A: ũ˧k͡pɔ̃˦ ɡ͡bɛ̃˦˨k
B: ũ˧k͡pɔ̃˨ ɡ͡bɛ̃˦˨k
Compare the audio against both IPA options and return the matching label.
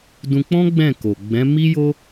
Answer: A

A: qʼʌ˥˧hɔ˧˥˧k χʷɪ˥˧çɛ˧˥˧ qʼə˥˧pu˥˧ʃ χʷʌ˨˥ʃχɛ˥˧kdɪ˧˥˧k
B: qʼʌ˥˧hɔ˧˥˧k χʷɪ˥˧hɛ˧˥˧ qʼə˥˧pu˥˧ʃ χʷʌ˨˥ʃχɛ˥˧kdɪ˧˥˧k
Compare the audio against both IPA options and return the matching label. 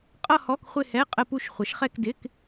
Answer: B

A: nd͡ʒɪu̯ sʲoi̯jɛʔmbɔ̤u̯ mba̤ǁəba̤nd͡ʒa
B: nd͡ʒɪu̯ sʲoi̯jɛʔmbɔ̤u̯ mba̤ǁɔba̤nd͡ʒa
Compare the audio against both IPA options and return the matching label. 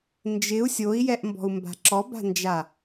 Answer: B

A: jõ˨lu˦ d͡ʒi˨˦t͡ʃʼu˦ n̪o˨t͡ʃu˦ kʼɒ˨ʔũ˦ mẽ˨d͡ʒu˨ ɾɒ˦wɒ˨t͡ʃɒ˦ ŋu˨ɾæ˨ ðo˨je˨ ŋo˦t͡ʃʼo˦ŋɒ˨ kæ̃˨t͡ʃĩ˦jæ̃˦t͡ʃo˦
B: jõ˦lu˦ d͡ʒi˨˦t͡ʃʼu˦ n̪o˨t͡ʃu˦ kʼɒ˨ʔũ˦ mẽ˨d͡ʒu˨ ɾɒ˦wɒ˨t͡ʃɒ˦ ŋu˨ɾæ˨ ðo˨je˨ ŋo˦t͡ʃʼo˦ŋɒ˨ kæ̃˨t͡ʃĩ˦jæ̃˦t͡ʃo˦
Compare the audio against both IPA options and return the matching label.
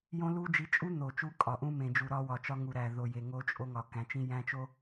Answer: B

